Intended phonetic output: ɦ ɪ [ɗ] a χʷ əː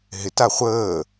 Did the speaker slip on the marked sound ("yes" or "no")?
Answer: yes